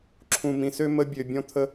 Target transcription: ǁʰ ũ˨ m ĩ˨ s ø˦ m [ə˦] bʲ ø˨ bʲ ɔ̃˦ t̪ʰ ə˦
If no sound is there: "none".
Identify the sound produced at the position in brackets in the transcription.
ə˦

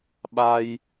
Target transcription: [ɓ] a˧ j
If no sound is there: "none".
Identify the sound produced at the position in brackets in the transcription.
ɓ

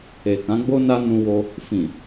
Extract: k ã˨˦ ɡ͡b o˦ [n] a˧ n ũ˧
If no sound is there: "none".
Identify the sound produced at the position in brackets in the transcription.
n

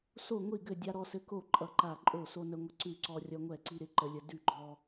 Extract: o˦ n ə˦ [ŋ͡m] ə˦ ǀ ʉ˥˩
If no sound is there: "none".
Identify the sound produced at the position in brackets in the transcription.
ŋʷ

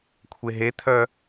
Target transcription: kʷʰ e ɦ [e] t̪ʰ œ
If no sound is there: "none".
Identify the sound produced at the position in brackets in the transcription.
e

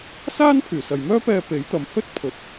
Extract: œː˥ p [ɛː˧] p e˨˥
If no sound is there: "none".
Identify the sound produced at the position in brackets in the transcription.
ɛː˧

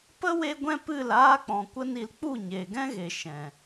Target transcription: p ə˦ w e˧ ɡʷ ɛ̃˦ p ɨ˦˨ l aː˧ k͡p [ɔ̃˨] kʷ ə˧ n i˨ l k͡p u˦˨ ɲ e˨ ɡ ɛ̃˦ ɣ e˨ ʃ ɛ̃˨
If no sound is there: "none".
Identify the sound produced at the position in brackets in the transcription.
ɔ̃˨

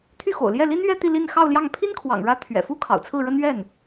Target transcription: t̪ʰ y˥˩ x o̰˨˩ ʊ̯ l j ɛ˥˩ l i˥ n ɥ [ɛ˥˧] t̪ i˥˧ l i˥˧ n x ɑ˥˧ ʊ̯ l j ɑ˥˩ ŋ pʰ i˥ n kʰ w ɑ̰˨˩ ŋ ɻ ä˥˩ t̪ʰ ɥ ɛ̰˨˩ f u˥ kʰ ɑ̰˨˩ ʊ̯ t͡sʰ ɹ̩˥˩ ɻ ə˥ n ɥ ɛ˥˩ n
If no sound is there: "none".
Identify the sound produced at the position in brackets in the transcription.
ɛ˥˧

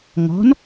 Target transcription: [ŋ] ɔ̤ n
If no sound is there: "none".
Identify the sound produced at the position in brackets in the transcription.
ŋ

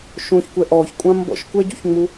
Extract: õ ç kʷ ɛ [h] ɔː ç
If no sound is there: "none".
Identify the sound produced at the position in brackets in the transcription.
ʔ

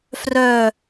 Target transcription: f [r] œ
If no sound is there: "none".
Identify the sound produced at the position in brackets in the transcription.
r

